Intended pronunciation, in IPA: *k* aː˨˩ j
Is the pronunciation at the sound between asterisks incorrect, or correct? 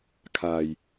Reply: incorrect